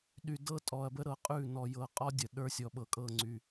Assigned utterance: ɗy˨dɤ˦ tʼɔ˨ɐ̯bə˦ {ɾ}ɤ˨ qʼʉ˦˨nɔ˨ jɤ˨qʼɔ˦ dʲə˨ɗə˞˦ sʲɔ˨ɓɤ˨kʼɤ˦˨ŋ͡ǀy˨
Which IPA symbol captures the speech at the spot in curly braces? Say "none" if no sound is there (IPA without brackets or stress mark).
ɾ